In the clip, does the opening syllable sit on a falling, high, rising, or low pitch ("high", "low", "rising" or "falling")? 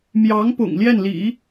rising